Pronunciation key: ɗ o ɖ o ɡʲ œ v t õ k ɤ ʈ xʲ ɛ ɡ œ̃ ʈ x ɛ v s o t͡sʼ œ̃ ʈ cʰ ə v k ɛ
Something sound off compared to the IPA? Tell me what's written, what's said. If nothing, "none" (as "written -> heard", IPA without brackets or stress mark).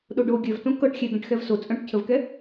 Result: none